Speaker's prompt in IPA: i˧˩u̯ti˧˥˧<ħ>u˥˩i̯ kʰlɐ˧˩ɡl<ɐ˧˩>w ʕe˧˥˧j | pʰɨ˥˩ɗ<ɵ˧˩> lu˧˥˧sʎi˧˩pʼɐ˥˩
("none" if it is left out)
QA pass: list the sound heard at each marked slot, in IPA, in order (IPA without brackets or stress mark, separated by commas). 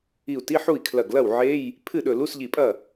ħ, ɐ˥˩, ɵ˧˩